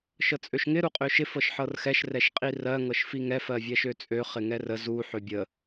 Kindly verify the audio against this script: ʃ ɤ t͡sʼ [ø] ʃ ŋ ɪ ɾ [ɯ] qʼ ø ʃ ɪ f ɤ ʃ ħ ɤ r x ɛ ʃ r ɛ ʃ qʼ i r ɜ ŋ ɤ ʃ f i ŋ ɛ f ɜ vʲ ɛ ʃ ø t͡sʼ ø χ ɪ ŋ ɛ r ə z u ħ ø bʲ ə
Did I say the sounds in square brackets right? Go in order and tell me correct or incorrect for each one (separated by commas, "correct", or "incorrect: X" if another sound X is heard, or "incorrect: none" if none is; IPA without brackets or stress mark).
correct, incorrect: u